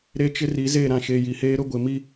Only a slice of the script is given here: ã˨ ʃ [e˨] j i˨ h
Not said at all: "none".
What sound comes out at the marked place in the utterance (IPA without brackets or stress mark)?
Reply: e˨